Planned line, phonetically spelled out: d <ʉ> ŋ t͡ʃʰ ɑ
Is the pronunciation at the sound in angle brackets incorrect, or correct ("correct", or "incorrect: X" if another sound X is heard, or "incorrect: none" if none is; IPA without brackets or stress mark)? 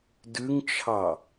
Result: correct